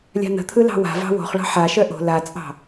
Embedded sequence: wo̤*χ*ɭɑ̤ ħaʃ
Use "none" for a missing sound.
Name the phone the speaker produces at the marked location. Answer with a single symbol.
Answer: χ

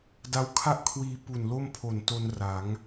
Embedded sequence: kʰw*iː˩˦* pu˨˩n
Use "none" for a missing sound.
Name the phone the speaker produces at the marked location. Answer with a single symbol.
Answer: iː˧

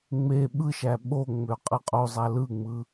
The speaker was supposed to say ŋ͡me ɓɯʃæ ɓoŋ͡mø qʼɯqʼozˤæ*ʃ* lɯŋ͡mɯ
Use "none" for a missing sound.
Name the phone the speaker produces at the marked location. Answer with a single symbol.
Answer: none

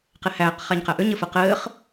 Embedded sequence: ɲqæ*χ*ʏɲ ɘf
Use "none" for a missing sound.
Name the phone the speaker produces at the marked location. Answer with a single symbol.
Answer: ʔ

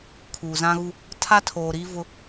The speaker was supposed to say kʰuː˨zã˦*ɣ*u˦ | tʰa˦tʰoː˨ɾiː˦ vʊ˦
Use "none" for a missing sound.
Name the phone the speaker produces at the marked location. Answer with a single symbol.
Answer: ɣ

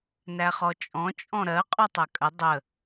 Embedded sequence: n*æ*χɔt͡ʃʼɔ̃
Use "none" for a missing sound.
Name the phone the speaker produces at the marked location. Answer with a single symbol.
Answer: æ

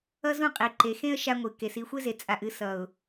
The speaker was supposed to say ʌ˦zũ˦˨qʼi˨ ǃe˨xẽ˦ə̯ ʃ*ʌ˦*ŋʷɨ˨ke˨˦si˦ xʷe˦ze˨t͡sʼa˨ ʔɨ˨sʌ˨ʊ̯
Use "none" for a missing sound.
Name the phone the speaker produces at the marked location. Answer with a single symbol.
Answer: a˦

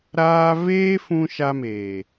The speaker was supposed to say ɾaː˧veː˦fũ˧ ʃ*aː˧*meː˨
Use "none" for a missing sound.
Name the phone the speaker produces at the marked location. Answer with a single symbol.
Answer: a˧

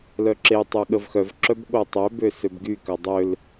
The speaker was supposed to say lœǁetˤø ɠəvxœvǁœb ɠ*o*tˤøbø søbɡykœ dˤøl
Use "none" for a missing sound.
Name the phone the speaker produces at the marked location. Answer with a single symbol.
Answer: o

